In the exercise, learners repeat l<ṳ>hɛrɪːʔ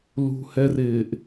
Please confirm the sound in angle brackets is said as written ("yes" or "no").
yes